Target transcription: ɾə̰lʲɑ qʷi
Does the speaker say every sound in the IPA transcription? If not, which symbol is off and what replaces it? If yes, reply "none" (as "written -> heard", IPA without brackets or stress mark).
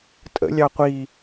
ɾ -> tʼ